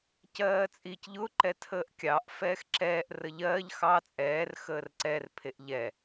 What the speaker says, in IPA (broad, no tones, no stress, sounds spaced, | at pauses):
c ɜː t͡sʼ i c ʎ ʊ ǃ ɛ tʰ əː ʔ kʲ ɑ ʔ f ɛː x ǁ ɛː ʔ r ə ʎ ɜː ʎ x ɑ t͡sʼ ɛː r x əː r ǀ ɛ r pʰ e ʔ ʎ ɛ